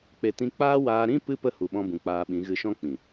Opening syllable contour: low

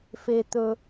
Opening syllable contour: high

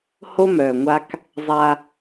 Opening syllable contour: high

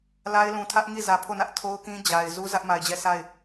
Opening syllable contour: high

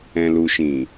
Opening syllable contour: low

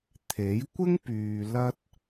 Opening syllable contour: rising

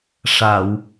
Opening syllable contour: low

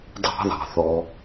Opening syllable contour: high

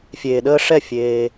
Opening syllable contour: low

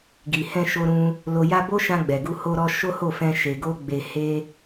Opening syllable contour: low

